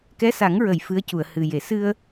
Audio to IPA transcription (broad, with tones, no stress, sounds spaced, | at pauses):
k ɛ˧˥ s a˨˩˦ ŋ ɹ ə˨˩˨ j f ɨ˧˥ ə̯ c u˨˩˨ ə̯ h ɨ˨˩ j e˨˩˦ s ɨ˧ ə̯